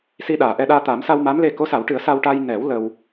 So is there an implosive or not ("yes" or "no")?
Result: yes